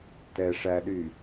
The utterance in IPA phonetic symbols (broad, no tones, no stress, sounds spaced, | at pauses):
t ɛ ʂ æ ɗ y